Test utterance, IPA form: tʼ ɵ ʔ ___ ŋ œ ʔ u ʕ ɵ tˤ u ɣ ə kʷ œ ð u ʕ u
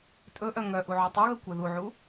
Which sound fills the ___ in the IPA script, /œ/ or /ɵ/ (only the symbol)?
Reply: œ